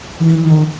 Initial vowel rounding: unrounded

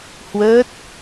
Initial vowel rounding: unrounded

